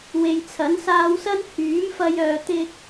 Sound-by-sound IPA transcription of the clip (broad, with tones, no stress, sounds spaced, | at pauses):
w e˨ j t͡sʰ ɐ˨˥ n s aː˧ w s ɐ˥ n h yː˨˥ m f ɐ˧ j œː˨ t̪ ɪ˧ k̚